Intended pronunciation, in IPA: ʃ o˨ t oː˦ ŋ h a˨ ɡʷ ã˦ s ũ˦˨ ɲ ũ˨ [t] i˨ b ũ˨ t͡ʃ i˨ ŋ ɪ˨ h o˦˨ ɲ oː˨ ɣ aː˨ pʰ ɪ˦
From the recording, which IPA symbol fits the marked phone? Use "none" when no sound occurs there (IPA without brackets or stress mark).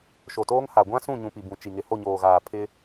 p